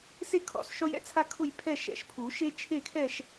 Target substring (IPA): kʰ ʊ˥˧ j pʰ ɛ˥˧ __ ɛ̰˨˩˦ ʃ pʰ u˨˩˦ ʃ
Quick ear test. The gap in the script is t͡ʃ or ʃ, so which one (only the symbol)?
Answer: ʃ